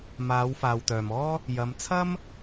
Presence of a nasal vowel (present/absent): absent